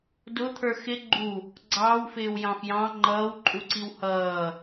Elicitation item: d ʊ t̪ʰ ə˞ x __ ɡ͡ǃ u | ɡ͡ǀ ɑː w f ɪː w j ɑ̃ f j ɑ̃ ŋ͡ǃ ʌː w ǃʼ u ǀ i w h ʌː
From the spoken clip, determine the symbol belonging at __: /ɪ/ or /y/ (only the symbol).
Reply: ɪ